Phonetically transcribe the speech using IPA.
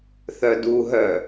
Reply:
θœduɦœ

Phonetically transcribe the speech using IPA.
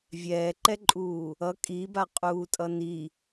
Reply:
vʲɛːǃɛǃʼuː | ʌ kʼibaqʼuːtʼʌ ni

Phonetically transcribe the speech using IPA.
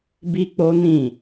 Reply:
bi˦k͡po˦nĩ˦˨

